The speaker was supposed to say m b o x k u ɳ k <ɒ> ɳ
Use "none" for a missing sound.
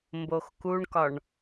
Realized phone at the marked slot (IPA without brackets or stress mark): ɒ